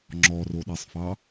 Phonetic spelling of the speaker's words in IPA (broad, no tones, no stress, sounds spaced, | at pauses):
ŋ͡ǁ ɔ r o ɗ ɛ sˤ f ɑ